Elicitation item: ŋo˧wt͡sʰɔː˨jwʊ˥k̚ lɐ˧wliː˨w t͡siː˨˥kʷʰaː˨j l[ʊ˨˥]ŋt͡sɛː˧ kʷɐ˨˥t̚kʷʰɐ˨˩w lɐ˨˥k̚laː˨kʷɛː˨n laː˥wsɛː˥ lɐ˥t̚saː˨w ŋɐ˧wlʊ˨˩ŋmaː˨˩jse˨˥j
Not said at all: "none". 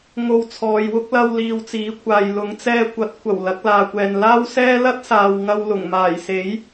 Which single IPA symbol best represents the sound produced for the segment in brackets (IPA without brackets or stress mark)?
ʊ˨˥